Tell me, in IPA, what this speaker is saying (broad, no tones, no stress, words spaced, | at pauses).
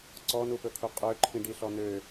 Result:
ǀɔnupɵkʰu qʼøǃʰĩɖiɬɔ nø